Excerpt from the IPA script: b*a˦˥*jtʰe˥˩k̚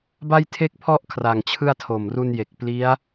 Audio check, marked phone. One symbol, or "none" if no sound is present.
a˥˩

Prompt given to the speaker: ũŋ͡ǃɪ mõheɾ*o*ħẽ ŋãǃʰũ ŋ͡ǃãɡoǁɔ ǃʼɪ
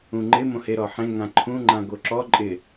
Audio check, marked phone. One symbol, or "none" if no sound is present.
ɔ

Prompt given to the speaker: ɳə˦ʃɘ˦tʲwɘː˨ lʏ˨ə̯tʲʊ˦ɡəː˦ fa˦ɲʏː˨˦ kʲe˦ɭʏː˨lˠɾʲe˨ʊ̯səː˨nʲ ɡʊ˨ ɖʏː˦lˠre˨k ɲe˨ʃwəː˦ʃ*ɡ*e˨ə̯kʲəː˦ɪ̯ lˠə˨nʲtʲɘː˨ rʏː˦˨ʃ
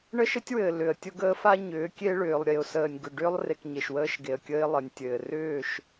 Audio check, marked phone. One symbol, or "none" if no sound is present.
ɡ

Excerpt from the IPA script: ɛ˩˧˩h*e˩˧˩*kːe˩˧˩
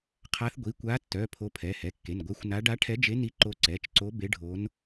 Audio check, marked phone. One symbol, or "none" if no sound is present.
ɛ˩˧˩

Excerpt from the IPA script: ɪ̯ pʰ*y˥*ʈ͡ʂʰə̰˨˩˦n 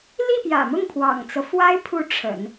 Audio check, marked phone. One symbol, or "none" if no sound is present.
u˥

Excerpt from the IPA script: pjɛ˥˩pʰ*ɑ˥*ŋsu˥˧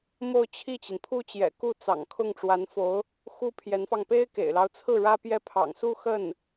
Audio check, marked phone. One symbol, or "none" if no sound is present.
ɑ̰˨˩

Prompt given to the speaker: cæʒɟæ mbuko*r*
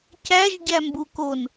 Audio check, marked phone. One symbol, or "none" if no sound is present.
n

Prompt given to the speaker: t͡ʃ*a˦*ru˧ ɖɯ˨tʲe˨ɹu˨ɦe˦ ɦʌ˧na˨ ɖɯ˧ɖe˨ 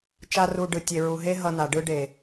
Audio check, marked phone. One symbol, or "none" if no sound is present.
a˦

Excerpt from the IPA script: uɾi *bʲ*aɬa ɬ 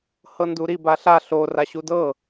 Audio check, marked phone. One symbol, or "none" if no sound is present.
b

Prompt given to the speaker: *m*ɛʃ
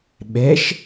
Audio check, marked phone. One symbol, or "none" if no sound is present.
ɓ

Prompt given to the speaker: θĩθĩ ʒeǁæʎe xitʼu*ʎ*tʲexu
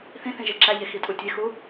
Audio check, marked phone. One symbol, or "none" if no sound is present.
none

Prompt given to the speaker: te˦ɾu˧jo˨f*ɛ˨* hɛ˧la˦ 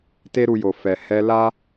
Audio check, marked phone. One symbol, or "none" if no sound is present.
ɛ˨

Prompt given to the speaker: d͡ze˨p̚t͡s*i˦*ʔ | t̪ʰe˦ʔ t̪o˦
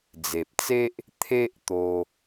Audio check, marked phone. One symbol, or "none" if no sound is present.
e˦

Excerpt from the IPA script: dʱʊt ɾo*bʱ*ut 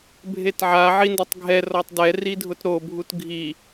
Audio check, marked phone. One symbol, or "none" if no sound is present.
bʱ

